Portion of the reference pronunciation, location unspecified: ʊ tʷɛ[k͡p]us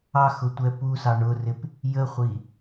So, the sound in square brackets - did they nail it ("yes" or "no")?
no